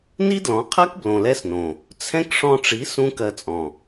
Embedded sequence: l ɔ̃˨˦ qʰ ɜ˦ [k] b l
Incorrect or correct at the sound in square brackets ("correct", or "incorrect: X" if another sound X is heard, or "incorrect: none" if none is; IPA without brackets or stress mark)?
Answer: correct